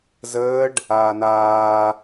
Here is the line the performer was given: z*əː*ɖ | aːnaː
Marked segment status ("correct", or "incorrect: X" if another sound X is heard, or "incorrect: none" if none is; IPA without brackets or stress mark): correct